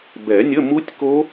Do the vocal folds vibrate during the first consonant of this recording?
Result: yes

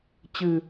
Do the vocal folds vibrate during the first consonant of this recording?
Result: no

